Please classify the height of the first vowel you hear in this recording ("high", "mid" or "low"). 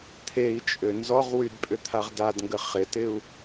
mid